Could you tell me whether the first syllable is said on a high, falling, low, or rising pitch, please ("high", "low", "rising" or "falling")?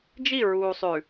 falling